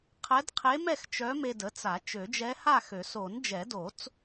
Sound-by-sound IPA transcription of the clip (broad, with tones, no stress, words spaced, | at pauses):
qʰɛ˧˥dqʰe˧˥mɛ˥˨x t͡ʃœ˧˥me˧də˩˥t͡sa˨˩˦ t͡ʃø˨˩˦d͡ʒɛ˧˥ha˥˨xø˨˩˦ so˨˩˦nd͡ʒɛ˨˩˦do˨˩˦t͡s